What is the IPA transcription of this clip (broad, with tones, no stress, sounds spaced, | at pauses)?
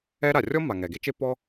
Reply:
ɛ˥ ɾ a˩ rʲ ɔ˥ mː a˩ ŋ ɛ˩ ɡ e˥ t͡ʃ e˥ pː ɔ˥